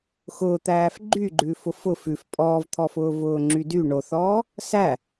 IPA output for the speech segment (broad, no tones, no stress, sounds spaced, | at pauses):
x ʊː t̪ æː f ɡ͡ǃ y ɡ͡ǃ ʉ f ʊ f ʊ f ʉ f pʼ ɔː v t̪ʰ ɔ f ʊː v ʊː ŋ͡ǁ y d y ɳ o θ ɔː | s æ